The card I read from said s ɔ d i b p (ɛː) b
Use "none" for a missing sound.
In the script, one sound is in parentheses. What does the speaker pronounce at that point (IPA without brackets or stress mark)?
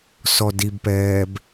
ɛː